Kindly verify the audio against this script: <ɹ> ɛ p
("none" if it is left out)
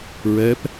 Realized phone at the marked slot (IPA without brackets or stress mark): ɹ